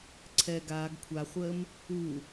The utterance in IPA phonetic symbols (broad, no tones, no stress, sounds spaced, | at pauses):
ǀʰ ɛ ɡ aː ɡ kʷʰ a χʷ əː m | u